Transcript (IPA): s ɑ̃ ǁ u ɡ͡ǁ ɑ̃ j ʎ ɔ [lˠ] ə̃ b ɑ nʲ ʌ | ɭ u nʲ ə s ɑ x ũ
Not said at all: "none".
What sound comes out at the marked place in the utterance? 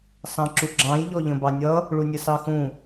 ʎ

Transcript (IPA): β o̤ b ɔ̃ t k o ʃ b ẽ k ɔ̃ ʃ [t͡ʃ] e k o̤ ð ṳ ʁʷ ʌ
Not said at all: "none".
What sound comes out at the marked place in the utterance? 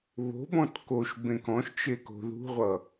t͡ʃ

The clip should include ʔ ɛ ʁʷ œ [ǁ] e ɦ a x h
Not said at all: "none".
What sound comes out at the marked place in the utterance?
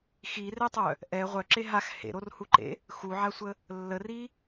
ǁ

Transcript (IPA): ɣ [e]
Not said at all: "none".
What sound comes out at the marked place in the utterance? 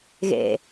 ḛ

